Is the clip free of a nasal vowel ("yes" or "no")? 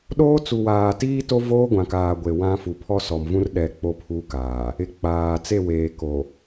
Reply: no